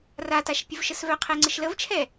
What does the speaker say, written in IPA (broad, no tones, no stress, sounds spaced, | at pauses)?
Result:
r a t a ʃ pʲ ə v ʃ ə s v œ qʰ ɛ ŋ͡ǀ ə ʃ l ə v t͡ʃʰ ɛ